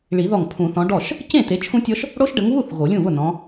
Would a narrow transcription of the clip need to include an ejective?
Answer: no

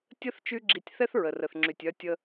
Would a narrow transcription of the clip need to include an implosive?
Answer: no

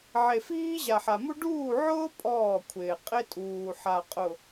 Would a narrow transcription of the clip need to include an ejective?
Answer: yes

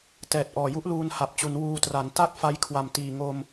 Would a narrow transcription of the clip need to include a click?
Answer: no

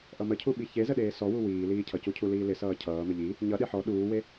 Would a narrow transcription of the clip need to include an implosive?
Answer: yes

